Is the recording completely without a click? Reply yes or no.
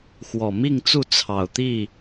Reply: yes